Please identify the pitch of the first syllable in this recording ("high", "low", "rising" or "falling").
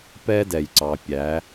high